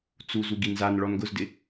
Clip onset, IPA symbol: t͡s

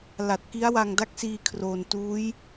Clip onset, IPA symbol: l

